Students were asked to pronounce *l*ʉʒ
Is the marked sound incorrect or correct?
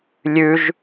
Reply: incorrect